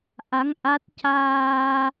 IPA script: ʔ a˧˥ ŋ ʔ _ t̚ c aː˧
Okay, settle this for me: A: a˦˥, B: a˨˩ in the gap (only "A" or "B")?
A